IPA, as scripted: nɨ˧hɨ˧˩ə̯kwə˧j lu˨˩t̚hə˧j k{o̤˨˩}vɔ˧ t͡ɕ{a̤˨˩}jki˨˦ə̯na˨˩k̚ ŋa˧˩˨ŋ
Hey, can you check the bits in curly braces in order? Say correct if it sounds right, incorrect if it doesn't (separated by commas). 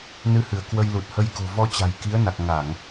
correct, correct